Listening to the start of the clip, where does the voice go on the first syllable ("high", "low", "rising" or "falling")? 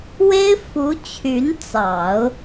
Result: high